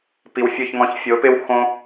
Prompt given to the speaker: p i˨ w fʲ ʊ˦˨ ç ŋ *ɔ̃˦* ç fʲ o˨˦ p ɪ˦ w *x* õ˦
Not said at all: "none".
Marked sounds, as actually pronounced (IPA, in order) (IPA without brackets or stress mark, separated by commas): ɔ̃˧, x